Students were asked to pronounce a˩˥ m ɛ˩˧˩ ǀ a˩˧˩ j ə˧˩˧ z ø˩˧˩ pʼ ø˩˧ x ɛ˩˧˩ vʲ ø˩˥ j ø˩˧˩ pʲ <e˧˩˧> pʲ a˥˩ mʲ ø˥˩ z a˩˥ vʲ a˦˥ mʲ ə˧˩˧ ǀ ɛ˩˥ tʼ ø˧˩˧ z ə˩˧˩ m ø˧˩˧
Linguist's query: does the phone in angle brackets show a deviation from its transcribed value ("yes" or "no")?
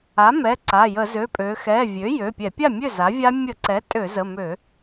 yes